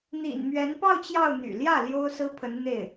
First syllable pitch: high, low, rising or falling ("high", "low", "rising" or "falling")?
low